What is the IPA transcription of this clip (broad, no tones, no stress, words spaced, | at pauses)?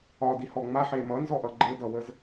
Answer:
ɒdihɔ ŋ͡maħe mʌnzɔʔʌ ɡ͡ǃedʌwəz